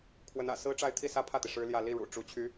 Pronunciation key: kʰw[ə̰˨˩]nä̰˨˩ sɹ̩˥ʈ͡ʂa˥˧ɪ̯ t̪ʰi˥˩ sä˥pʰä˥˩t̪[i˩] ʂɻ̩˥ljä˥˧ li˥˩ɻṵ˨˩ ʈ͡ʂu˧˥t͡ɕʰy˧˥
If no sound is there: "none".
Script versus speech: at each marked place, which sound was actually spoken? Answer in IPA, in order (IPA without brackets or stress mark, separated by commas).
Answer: ə˧˥, i˩